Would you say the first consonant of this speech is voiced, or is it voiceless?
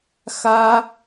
voiceless